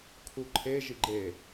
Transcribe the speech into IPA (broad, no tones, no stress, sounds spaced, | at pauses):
kʰ u ǃʰ e ʒ i ɡ͡ǃ e